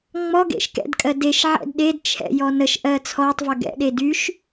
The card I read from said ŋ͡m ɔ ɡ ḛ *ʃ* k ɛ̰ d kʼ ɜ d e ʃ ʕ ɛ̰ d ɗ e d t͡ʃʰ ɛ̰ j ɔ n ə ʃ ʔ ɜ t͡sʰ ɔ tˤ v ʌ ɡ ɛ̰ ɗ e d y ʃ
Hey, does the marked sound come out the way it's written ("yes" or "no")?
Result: yes